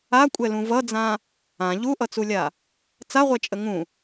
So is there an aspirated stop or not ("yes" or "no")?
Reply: no